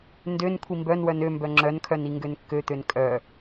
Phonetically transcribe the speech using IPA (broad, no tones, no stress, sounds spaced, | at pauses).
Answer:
n d ø n kʷʰ i m b œ n w œ n ø m b œ ŋ͡ǁ œ n kʰ œ n i ŋ ɡ ø n kː ø t̪ ø n kʼ œ